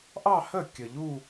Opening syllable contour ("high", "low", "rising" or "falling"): falling